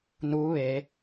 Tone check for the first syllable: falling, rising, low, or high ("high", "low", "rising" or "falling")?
rising